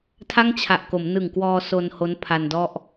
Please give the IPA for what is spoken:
tʰ a˥˩ ŋ t͡ɕʰ a˨˩ ʔ k o˩˦ m n ɯ˨˩ ŋ k w ɔː˧ s o˧ n h o˦˥ n pʰ a˧ n d ɔ˥˩ ʔ

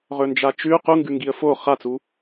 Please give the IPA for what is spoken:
ʁ ɵ n d͡ʒ a t͡ʃ ʉ q u ŋ ɡ ʉ ŋ ɡ i ə̯ f o χ a t͡s u

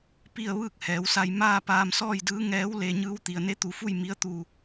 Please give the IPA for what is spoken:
p i˥˨ ə̯ ʋ ɯː˥˨ k̚ h ɛː˩˧ w s a˧ j m aː˥˨ p aː˧ m s ɔː˥˨ j d ɯː˧˥ ŋ ɛː˧˥ w l e˧ ɲ ɯː˧˥ w t̪ i˩ ə̯ n e˧˥ t̪ u˩˧ f u˥˨ j m i˧˥ ə̯ t̪ uː˧˩

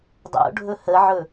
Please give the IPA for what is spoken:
dˤ o̰ ɖʱ ɵ h ə ʕ ɵ

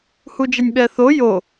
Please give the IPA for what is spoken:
h u d͡ʒ ɛ nʲ ɓ ɛ θ o j o

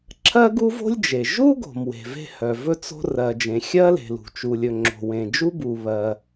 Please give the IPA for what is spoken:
ǁʰ ɜ˥ ɡ u˥ v o̤˥ lʲ d͡ʒ e˩ ʒ u˥ ɡ o̤˩ m w e̤˩ v e̤˥ h œ˩ v ɵ˥ t͡s o̤˥ r ɜ˩ d͡ʒ ẽ˩ xʲ ɜ˥ l e̤˩ l ṳ˩ t͡ʃ u˩ lʲ ɵ˩ ŋ͡ǁ o̤˩ w ẽ˩ d͡ʒ u˥ b u˩ β ɜ˩

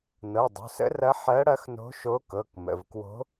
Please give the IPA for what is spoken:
n ɤ˩˧˩ dˤ o̤˩˧˩ s ə̰˧˥ r ɐ˧˥ ħ ɜ˧˥ ɽ ɐ˧˥ x n o̤˧˥ ʃ o˧˥ k ɤ˩˧˩ k m ə̰˩˧˩ v k w o̤˧˥

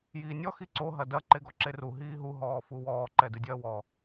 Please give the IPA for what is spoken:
j iː nʲ ɔ x i ǀ o ɦ ɐ d ɐ ǃ e ɡ ɔ ǁ e r u ɦ iː ɦ u ɦ ɔː f u w ɔː ǃ ɛ d ɨ dʲ ɐː w ɔ

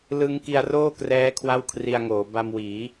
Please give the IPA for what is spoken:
l ɯ˦˥ ŋ k i˧ a̯ r oː˥˩ k r ɛː˦˥ kʰ w a˥˩ w kʰ r i˧ a̯ ŋ oː˩˦ b a˧ m w iː˩˦

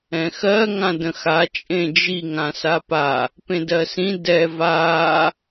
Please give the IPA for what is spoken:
ɛ̃ x ɜ ŋ ã d ə̃ x a t͡ʃʼ ẽ d͡ʒ i ŋ ã s a p a | p ẽ d ɜ s ĩ d ɛ v a

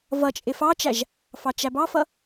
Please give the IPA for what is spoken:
v ʌ t͡ʃʼ ɪ f ɑ t͡ʃ æ ʒ | f ɑ t͡ʃ æ b ɑ f ʌ

